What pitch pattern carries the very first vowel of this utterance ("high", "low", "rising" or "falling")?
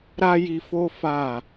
high